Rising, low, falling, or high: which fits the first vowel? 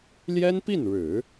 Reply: high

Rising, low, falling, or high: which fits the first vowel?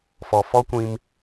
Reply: low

